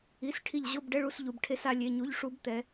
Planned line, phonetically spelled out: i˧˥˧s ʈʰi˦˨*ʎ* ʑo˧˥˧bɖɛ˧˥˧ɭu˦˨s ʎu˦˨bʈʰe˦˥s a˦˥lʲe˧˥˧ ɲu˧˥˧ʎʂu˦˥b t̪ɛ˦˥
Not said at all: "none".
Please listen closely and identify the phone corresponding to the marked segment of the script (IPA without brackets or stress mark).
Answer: ʎ